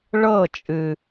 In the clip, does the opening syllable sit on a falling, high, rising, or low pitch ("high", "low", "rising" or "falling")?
falling